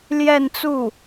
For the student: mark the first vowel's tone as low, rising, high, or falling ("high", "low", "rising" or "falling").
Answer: falling